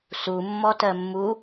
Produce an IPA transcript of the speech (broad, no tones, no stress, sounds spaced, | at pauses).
s u mː ɔ t ɜ mː u